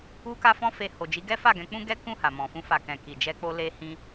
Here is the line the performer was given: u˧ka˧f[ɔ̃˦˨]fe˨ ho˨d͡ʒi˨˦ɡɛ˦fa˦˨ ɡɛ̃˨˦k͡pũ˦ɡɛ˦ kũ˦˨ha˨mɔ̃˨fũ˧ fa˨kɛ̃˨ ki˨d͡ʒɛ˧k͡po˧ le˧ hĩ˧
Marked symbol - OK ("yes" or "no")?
no